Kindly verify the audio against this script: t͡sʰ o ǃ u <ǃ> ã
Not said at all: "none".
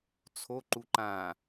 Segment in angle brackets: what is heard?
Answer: ǃ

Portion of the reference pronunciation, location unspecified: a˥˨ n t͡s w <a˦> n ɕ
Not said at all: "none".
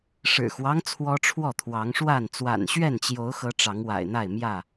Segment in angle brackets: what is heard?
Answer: a̰˨˩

